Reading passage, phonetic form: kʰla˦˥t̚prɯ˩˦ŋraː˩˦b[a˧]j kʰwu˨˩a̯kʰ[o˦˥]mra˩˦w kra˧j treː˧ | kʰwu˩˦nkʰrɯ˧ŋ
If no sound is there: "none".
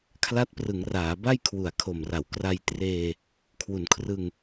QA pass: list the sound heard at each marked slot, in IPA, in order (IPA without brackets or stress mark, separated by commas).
a˥˩, o˨˩